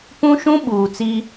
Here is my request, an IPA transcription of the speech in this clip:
p ũ˦ ʃ ũ˦ ɓ uː˨ t͡s i˦

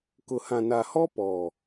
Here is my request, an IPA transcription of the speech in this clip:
k ʊ˨ h ã˨ n a˨ h ɔ˦ p ɔ˨

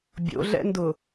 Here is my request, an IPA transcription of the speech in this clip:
bʲ o̰ ɮ ɛ̰ n d ʊ

